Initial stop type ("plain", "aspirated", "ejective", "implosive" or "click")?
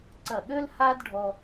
click